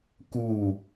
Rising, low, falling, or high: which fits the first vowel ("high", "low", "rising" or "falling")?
falling